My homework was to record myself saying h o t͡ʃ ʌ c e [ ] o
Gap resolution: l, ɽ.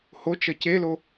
l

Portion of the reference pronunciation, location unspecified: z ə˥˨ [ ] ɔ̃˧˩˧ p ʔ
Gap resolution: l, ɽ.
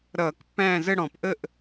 ɽ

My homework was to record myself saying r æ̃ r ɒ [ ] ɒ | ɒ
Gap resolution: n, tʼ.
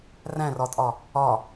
tʼ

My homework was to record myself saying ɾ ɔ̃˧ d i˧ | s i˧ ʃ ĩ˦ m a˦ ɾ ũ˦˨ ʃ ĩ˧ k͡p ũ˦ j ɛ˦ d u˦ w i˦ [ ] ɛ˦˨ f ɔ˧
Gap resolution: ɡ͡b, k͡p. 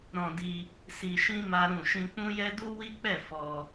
k͡p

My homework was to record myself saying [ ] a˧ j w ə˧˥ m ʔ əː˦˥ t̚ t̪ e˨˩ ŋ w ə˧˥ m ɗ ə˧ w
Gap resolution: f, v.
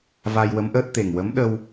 v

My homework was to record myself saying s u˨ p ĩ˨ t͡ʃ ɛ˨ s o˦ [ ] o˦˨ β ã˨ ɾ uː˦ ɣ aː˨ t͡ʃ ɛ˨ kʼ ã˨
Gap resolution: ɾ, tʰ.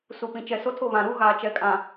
tʰ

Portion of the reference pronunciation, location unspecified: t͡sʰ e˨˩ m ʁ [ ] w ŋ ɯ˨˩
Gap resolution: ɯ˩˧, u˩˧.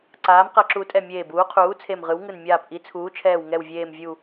ɯ˩˧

